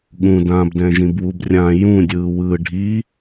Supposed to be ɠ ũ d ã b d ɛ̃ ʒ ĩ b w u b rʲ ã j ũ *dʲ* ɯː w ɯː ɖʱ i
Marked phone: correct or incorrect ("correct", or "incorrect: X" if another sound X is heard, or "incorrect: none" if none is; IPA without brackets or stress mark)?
correct